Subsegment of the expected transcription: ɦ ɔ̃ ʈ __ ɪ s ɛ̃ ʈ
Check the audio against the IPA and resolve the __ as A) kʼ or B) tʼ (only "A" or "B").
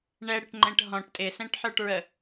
B